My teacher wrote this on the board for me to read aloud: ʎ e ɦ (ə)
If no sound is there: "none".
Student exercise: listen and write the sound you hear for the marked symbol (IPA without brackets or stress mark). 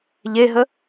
ə